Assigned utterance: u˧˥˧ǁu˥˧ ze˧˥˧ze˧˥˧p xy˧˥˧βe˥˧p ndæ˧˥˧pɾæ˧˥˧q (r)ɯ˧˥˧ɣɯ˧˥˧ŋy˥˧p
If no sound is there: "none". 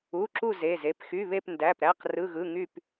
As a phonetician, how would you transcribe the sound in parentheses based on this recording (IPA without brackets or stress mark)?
r